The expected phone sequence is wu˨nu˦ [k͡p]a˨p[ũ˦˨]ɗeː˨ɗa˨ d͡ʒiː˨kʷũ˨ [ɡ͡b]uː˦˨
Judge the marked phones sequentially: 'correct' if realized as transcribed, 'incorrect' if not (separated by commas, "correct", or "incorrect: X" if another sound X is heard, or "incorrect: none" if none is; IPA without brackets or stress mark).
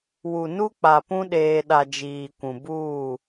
correct, incorrect: ũ˦, incorrect: b